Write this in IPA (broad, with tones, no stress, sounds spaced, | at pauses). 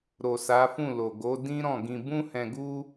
ɾ o˨ s a˨˦ f ũ˦˨ l o˨ ɡ o˨˦ d ĩ˦ ɾ ɔ̃˦˨ ɡ ĩ˧ b ũ˦ h ɛ̃˧ ɡ u˦